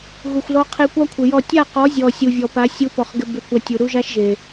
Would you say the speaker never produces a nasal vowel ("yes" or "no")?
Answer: yes